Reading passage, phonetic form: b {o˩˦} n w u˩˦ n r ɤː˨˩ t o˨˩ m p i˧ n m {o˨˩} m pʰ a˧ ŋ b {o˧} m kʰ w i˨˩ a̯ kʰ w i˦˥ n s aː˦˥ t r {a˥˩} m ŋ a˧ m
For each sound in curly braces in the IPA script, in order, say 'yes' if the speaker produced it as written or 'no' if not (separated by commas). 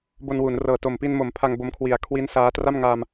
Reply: no, no, yes, yes